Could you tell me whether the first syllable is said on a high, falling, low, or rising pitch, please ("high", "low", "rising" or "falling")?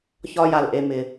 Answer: high